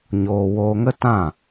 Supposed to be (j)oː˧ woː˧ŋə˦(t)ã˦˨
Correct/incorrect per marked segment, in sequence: incorrect, correct

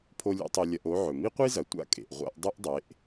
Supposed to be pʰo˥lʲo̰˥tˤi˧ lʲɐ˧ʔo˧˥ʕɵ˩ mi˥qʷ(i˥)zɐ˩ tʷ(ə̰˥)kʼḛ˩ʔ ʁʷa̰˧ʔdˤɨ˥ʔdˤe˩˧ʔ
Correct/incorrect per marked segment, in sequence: correct, incorrect

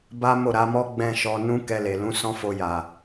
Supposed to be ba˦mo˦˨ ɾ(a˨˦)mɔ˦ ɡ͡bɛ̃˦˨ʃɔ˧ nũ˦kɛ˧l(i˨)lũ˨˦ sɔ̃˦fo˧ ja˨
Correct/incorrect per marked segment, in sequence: correct, incorrect

